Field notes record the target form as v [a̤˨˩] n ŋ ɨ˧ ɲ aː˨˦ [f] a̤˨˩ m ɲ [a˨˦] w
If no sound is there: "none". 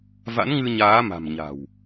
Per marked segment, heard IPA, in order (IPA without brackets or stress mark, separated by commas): a̰˧˥, m, a̤˨˩